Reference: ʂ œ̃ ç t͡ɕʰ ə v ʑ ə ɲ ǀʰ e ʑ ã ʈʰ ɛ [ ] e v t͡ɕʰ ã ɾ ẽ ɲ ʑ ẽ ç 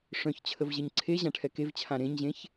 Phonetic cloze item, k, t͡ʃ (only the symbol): k